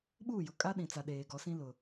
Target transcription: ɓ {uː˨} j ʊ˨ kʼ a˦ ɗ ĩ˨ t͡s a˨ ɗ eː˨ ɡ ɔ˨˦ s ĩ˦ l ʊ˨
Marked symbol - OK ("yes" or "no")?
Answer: no